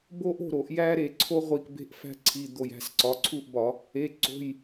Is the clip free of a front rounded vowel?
yes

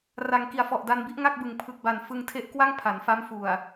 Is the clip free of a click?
yes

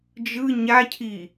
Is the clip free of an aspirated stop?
no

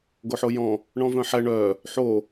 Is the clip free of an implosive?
yes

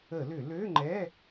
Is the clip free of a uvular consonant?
yes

